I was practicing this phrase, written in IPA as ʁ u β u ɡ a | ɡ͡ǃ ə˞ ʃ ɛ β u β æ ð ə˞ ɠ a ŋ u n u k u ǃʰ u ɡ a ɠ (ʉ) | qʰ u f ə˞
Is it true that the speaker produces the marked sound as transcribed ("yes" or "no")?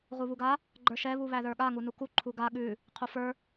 yes